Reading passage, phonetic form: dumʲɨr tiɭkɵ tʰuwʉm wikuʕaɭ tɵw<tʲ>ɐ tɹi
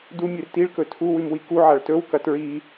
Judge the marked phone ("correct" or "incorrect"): incorrect